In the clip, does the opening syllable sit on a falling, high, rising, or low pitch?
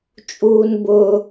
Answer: high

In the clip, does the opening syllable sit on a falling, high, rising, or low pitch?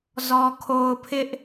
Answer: low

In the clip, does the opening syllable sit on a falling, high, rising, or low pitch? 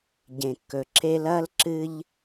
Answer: low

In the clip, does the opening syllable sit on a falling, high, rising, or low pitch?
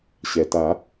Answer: low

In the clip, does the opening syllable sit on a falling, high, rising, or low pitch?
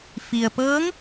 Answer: low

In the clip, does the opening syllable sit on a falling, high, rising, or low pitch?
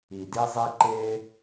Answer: low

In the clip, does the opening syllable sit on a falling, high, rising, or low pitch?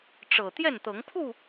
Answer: low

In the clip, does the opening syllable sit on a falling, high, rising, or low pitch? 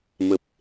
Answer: low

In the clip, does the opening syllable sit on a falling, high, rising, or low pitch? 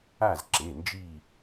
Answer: falling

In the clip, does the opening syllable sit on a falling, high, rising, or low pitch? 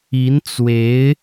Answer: rising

